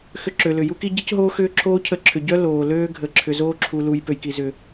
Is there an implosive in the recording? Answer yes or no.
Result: no